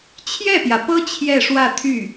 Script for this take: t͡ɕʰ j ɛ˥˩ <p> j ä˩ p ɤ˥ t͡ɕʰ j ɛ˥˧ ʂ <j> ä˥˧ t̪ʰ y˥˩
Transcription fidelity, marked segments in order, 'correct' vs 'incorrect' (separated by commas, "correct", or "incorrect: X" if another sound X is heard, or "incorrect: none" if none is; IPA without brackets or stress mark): correct, incorrect: w